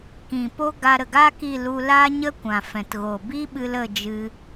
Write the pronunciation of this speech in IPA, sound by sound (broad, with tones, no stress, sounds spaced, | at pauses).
k ĩ˨ p o˦ ɡ a˧ ɾ ə˨ ɡ aː˦ k i˦˨ l u˧ l aː˦ ɲ ə˦ kʷ ã˨ f ɛ̃˨ t ɣ o˨ b i˦ ɓ ɨ˧ l ə˦˨ d͡ʒ ɨ˧